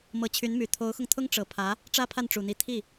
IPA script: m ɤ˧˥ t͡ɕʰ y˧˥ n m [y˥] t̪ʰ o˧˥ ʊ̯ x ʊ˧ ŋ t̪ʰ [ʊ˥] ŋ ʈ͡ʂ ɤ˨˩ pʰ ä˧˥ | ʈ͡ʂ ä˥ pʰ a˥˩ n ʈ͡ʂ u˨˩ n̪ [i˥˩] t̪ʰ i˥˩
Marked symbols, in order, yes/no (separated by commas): no, yes, no